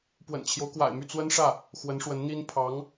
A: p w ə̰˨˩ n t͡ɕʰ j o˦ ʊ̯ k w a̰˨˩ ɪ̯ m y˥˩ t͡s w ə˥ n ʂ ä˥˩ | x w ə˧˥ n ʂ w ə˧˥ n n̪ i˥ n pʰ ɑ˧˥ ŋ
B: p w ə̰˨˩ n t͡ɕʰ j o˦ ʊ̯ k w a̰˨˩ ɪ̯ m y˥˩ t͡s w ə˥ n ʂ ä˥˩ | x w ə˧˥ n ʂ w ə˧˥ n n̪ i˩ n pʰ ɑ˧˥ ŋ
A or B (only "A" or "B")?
A